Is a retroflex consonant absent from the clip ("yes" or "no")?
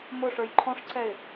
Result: no